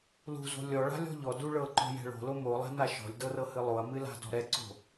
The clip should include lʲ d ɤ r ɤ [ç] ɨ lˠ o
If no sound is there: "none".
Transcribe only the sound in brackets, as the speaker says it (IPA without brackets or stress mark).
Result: h